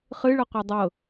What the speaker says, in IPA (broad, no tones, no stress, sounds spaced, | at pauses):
χ ɨ ɭ ɤ qʷ ɛ dˤ ɤ